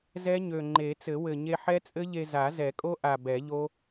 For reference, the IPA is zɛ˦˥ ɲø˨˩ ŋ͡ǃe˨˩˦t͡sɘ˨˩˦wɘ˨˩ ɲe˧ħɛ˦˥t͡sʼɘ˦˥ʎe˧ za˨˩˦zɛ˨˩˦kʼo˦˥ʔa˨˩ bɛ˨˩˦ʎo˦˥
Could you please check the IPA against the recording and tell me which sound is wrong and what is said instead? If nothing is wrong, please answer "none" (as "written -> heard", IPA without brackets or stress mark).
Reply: none